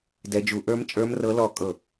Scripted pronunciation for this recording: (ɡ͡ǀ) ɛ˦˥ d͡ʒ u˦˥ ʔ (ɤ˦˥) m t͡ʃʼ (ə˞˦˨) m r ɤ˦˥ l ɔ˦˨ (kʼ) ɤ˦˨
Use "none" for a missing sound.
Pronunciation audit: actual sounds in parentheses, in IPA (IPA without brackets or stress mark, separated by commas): d, ə˞˦˥, ə˞˦˥, kʼ